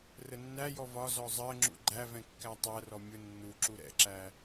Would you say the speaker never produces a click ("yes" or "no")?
no